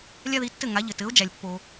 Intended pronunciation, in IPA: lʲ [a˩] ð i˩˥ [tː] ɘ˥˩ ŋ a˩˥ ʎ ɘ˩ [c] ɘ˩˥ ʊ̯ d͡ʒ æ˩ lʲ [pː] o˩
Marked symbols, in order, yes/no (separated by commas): no, yes, no, yes